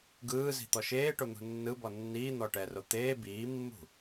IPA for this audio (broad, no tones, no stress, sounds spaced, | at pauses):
ɡ ɯː z i̤ t̪ ɔ ʃ eː ʈ o n̪ ṳ nː ɯ b ɔ nː iː n̪ ɔ ʈ ɛ r o t̪ eː b iː mː ṳ